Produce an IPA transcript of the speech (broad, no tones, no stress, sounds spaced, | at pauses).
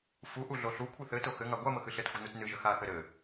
f u ʔ u ɮ o ɬ u kʷʰ ɨ θ ɘ t o x ɘ ŋ a ɡʷ a m ə x ɨ ɬ ɘ t xʷ ɘ n u t n ɨ ʒ ə x a θ ɘ ɾ ɘ